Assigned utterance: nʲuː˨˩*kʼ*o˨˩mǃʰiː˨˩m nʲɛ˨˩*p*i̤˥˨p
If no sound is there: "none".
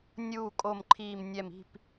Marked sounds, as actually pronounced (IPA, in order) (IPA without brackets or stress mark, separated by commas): kʼ, m